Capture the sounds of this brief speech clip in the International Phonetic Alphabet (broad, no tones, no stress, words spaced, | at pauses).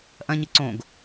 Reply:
ʔɐ̃ɲɨ ǀõɡ